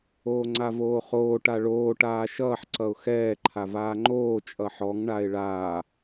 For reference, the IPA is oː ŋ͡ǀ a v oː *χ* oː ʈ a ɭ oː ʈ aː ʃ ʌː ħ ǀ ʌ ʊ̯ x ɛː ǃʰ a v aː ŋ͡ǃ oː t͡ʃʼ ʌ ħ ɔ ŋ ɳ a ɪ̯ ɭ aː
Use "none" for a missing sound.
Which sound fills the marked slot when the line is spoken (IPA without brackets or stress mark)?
χ